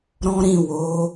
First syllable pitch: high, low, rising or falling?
high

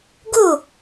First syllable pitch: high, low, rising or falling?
falling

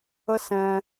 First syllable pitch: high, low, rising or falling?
high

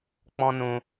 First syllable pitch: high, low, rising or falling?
high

